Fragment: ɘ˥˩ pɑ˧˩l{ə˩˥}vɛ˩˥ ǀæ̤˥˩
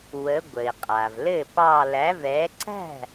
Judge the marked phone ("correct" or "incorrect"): incorrect